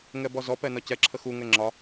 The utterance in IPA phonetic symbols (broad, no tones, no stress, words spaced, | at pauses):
ŋɛbɔzɔpɛ nɒcɛǁʰə xuŋɛ ŋ͡ǁɒ